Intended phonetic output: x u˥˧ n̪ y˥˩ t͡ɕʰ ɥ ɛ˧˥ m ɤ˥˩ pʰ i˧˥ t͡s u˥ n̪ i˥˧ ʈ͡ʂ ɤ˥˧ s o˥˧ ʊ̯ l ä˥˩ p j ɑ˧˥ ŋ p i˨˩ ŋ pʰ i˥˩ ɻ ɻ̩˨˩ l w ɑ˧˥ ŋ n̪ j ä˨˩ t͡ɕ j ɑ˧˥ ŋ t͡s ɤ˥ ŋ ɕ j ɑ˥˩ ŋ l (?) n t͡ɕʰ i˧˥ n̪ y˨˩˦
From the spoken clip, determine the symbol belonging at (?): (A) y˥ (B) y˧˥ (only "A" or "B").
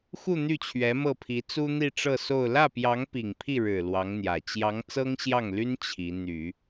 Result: A